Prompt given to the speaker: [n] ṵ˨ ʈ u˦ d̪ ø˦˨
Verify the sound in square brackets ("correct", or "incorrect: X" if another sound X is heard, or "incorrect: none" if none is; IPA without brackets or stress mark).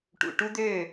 incorrect: ʈ